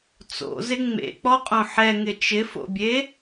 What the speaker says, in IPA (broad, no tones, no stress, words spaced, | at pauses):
t͡so̰zɪ ŋ͡mḛk͡pɔqʼõ ħɛŋɪ t͡ʃɪfo̰bʲe